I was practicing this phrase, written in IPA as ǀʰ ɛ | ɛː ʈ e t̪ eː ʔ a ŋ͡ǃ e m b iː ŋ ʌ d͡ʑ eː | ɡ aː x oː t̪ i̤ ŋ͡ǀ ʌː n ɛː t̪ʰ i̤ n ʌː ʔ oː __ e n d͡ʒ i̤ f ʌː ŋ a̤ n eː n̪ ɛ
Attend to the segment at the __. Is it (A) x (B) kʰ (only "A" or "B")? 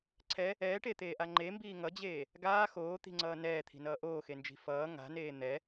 A